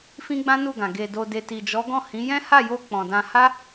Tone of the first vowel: high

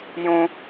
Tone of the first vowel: high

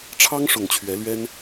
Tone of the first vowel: high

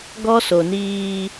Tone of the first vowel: high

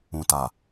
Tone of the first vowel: low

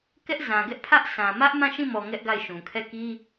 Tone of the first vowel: high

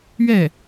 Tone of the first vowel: falling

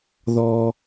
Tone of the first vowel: high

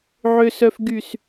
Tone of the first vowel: low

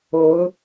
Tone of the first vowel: rising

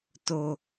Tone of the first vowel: low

